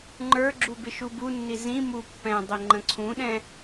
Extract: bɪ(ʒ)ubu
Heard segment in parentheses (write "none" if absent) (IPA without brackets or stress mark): ʃ